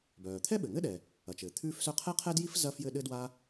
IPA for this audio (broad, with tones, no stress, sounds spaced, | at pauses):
b œː˩ t̪ʰ ɛ˥ ɓ ɘ˩ ŋ ɘ˥ ɗ ɛ˩ | ɐ˩ t͡ʃ ɘː˩ t̪ʰ ʉː˥ f s œ˥ qʰ ɛ˥ qʰ ɛ˥ d j i˥ f z ɐ˥ f j ɘ˥ ɗ ɘ˥ d w a˥